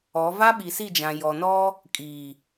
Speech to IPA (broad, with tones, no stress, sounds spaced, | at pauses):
ɔ˨˦ v a˦ ɓ i˨ s i˦˨ d͡ʒ ã˨ j ɔ˨ n ɔ˦ | kʼ iː˨